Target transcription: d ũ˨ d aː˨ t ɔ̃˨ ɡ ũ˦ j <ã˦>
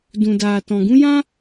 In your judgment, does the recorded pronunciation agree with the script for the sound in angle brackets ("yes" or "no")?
yes